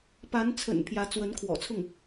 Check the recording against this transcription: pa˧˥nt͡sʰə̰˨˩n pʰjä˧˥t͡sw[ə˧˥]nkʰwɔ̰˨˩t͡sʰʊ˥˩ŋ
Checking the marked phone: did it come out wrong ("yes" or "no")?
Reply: no